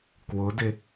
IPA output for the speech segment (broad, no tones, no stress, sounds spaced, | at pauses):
k w ʊ d ɪ